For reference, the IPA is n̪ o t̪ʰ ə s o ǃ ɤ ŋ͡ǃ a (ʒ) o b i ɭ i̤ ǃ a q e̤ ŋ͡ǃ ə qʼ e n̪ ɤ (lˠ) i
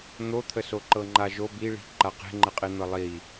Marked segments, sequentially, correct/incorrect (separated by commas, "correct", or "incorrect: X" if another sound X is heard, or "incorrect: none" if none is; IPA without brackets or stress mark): correct, correct